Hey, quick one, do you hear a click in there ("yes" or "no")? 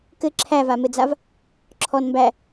yes